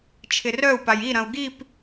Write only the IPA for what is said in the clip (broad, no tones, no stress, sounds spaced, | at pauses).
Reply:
t͡ʃʰ ɪ r œ u̯ p a j i ɾ ɐ̃ u̯ ɡ i p